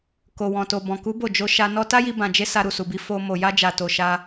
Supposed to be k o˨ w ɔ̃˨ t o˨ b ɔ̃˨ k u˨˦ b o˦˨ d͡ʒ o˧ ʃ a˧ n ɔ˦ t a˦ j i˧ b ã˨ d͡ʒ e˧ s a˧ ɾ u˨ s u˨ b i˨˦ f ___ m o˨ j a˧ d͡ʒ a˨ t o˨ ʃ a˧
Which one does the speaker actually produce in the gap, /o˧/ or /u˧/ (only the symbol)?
o˧